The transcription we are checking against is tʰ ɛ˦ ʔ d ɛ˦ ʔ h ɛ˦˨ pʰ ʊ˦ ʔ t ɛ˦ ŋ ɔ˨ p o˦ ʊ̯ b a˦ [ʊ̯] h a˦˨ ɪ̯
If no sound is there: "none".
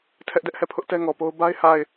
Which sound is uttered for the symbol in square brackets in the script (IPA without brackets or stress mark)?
ɪ̯